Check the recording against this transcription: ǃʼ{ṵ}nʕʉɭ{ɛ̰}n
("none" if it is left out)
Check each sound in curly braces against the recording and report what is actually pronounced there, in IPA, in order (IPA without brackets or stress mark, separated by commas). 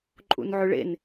ṵ, ḛ